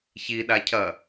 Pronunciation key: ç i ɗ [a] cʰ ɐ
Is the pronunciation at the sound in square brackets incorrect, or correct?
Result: correct